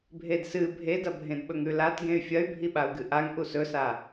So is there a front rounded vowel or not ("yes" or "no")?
yes